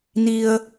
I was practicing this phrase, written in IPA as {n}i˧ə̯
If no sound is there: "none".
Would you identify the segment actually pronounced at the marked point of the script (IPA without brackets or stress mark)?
n